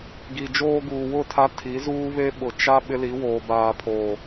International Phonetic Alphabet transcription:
ɡi˨d͡ʒoː˦ɡuː˨ wʊ˦˨tʰa˦ tʰi˨˦zuː˦βe˦ ɓʊ˨ t͡ʃa˦ ɓɪ˦li˨˦woː˨ baː˨pʰoː˨

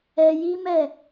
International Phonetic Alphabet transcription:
ɛ˧ji˦mɛ˦˨

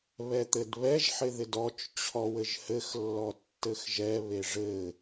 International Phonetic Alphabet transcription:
βɛt̪ɘdβɛʒ ħɪðɪdɔt͡ʃ t͡ɕʰɔwɘʒhɘx lːɔtːɘxʒɛ βeʐɘ

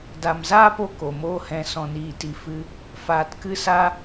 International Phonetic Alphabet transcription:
da˧m zaː˦po˧ ko˨moː˦ hɛ̃˧ sɔ̃˧niː˦˨ti˧ fɨ˧ | faː˧tkɨ˦sa˦

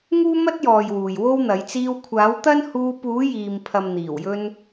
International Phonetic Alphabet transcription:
ŋuː˥mɐ˥t̚jɔː˨j wuː˨jwo˥wn̪ɐ˨˥j t͡siː˧wkʷʰaː˨˥wt̪ɐ˥n huː˧puː˨˥ jiː˨mpʰɐ˨m n̪iː˨˩wjɵ˧n

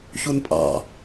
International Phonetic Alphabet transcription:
çunpʼɑ̰

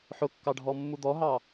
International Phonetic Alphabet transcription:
ħʊkːɑɖʱɔmːu d̪ɔɦɑ

